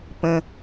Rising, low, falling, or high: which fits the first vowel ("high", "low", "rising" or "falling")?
low